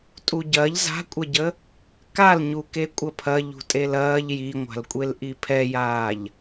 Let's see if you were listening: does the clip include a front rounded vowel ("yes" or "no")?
no